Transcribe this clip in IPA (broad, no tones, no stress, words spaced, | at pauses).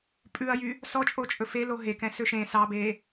pʼʉɐ̯jy | sɔt͡ʃʼot͡ʃʼɵ felo ɦekɛ̃sø ʃẽ sɑbe